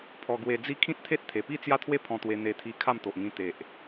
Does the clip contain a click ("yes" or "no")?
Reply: no